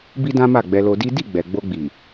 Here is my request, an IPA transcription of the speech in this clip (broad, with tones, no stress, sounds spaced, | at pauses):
b i˦ d ã˦ m a˦˨ ɡ͡b ɛ˧ l o˧ d i˦ d i˦˨ ɡ͡b ɛ˨ ɡ͡b o˧ ɡ͡b i˨